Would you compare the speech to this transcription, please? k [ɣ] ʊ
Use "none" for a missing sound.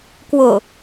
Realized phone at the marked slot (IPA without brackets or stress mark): w